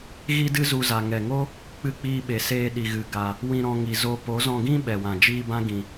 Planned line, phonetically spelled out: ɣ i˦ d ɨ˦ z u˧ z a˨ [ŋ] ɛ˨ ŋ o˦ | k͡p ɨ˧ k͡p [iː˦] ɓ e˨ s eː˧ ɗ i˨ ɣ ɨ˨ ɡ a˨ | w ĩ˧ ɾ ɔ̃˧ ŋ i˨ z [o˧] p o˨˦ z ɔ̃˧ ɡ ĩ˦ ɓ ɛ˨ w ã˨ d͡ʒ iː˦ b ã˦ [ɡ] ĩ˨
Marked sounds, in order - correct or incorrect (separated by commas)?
correct, incorrect, correct, correct